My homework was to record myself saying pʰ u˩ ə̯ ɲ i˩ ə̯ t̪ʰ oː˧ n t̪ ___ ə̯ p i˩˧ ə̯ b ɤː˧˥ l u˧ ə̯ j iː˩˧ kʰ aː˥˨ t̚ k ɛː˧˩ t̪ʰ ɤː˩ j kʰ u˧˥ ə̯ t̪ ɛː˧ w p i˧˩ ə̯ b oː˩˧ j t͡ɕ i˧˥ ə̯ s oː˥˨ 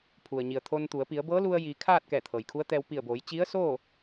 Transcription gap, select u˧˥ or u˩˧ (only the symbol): u˩˧